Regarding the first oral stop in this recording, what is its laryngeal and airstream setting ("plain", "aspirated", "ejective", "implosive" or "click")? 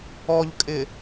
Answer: ejective